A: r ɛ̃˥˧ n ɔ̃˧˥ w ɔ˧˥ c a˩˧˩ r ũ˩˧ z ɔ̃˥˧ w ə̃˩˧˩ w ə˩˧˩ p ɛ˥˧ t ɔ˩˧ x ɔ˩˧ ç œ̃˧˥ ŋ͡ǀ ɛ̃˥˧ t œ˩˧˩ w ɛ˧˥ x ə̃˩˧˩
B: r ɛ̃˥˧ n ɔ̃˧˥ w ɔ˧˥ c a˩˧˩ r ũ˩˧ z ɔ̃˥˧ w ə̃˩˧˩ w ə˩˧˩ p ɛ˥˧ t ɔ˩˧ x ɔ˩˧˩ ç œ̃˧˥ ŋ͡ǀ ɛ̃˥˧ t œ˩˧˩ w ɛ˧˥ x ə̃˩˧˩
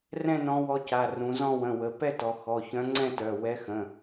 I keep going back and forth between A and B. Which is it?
B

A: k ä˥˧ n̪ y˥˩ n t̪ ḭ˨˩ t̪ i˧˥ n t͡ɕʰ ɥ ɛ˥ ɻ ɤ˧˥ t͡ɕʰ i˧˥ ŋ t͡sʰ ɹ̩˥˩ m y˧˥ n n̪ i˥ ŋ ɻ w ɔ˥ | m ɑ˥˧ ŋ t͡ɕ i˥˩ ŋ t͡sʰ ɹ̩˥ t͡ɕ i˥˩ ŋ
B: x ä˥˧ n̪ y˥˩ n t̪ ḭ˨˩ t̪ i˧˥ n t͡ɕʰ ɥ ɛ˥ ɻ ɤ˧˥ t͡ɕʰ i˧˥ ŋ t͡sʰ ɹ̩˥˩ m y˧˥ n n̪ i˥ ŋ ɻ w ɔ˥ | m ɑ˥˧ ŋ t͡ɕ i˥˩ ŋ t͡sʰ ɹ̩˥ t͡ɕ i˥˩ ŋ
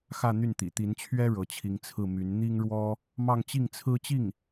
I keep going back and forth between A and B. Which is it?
B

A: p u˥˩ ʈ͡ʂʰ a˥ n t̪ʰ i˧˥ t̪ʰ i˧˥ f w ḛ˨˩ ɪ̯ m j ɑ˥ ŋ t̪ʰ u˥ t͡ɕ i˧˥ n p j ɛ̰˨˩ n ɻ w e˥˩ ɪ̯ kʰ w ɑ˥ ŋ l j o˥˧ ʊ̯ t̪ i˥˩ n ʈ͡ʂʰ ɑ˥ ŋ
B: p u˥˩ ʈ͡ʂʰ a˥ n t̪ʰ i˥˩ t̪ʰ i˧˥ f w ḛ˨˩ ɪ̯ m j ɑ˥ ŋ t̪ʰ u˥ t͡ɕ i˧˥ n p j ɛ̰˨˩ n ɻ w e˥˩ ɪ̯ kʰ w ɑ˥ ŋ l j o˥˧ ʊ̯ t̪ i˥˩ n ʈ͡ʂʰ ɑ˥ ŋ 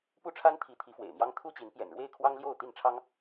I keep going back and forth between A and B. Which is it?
A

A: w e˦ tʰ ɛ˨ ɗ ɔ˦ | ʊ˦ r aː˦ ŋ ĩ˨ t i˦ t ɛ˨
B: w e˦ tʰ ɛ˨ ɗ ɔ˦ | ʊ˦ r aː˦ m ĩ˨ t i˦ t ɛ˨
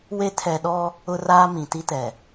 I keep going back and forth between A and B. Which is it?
B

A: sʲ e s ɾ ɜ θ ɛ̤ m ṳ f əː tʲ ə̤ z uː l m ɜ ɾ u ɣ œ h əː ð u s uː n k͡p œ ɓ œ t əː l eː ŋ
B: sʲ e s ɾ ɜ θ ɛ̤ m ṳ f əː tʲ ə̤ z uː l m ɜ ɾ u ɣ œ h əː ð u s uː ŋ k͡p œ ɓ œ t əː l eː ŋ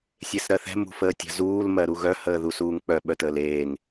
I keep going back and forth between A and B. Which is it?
B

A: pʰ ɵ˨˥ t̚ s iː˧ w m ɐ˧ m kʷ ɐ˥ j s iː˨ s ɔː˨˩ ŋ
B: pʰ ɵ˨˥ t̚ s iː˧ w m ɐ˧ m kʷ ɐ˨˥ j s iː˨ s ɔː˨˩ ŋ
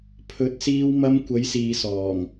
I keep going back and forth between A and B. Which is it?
B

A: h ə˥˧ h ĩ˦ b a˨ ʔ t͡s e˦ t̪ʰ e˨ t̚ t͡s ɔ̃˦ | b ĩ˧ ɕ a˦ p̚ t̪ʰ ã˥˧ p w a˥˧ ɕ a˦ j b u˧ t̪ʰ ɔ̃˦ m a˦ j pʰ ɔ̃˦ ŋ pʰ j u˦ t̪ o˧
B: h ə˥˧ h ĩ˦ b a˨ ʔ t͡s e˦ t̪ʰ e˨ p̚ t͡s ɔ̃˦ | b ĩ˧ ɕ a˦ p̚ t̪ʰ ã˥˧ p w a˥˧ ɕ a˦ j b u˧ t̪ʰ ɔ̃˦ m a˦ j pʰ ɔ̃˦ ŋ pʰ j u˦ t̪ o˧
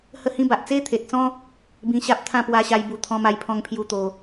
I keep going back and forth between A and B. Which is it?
A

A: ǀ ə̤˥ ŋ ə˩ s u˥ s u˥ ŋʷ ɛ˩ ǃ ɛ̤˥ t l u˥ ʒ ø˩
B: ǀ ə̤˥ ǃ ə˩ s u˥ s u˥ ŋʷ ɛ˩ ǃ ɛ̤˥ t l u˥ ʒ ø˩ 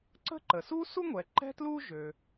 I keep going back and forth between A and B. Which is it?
B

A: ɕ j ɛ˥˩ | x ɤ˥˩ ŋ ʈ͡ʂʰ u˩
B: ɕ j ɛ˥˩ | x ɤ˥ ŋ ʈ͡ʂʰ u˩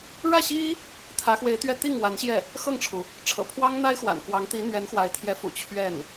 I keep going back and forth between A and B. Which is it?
A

